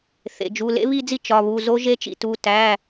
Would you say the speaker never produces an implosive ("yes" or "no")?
yes